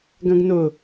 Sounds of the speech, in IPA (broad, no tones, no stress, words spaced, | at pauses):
ɡɐ̃ɡnʊ